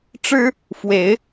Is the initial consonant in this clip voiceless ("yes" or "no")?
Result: yes